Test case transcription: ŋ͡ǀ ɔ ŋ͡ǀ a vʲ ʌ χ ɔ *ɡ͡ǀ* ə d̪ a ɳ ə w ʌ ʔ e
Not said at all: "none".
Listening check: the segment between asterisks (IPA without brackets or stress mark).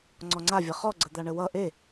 ɡ͡ǀ